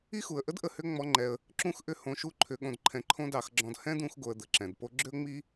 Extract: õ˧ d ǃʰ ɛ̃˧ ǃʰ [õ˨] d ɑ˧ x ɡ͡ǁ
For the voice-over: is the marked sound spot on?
no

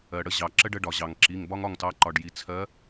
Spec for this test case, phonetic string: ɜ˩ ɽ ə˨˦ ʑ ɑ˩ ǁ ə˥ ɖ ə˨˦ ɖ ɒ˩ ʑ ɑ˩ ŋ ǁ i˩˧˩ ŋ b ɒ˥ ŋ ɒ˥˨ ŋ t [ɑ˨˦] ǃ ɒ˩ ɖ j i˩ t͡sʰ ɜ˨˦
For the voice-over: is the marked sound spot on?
yes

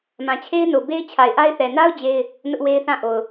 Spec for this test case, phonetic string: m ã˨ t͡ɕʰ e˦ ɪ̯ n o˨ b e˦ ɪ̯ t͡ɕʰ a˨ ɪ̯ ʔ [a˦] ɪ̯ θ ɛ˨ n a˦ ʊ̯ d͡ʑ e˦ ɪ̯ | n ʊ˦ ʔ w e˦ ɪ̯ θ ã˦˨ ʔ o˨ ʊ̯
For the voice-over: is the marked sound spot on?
yes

